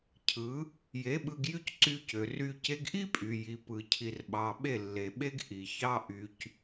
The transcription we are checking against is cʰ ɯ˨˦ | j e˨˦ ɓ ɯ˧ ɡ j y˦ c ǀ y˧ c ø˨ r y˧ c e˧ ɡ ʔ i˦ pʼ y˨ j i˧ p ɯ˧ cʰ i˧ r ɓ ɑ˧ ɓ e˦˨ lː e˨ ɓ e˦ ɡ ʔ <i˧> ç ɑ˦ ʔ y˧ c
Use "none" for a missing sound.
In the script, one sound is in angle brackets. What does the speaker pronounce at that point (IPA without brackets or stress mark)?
i˨